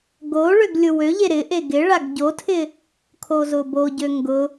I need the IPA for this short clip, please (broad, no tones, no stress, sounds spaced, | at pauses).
ɡ o ɭ ø ɡ lʲ ʊ w ø ʎ e ɾ ɪ ʔ e ɡ ɪ ɭ a ɡ ɟ o tʰ ɪ | kʰ o z ʊ b o ɟ ø ŋ ɡ ʊ